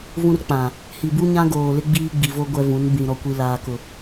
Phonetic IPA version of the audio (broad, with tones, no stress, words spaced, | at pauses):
vũ˦rk͡pã˨ | hi˨bu˦ɲã˦ɡoː˨ lɪ˦ɡ͡biː˦ɡ͡bi˨vo˦ ɡʷɛ˦vũ˨˦n bĩ˨ ɾɔ˨kʷi˨laː˨kʊ˨